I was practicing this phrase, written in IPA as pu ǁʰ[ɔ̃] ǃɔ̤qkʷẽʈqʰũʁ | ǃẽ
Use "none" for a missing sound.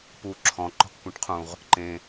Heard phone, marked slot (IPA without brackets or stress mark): ɔ̃